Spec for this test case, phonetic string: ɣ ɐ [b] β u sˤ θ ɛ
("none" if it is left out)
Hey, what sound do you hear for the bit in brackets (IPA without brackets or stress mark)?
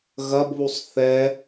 b